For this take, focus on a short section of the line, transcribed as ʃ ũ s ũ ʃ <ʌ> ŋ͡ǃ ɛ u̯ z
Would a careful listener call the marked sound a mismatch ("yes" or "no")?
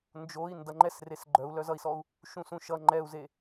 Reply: no